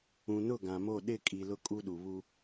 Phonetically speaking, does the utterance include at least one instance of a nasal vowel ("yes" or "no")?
yes